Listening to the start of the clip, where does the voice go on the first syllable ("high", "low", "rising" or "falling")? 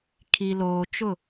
low